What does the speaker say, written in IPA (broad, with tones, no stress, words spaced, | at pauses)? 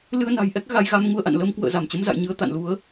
lɨ˧ə̯na̤˨˩jʔɛ˦˥k̚ ɣa˨˦jɣa˨˦mŋu˨˦ə̯ʔa̰˧˨n lə˨˦mkwə̰ː˧˨ za˧˩mt͡ɕə˨˦mza̰˧˨jɲɨ˨˦ə̯ t̪a̰˧˨nlu˨˦ə̯